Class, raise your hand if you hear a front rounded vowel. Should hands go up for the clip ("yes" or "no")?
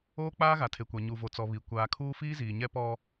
no